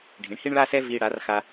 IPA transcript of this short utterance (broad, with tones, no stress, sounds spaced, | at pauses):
ɖʱ ĩ˩˥ ɳ h i˥ ɳ ɭ a˥ s ɛ˥ v iː˧ ɽ a˩˥ r x a˧